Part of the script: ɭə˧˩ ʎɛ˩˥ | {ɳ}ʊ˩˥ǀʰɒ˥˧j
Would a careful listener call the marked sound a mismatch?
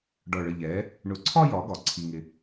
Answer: no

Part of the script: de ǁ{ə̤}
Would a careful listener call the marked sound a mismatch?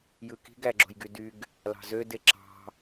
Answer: yes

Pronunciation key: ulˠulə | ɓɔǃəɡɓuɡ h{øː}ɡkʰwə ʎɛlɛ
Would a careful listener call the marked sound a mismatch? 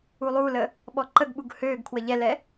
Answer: no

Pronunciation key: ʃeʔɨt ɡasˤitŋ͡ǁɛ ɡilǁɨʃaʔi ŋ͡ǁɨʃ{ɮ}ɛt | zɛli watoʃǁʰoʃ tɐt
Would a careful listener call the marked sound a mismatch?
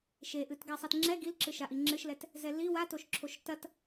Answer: yes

